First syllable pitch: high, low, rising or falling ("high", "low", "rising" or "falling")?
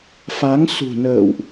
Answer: rising